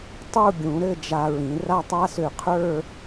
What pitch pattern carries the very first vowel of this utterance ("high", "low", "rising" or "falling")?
falling